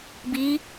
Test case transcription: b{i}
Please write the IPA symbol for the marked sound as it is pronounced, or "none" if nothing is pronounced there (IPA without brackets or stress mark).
i